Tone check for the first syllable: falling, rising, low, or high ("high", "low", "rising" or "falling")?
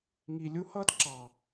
low